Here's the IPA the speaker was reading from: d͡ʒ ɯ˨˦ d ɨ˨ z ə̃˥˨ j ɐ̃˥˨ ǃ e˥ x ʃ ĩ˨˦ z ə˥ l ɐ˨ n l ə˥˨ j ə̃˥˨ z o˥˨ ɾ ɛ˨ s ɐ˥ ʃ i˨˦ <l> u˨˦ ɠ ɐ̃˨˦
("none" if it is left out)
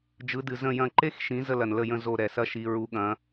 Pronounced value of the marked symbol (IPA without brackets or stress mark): ɹ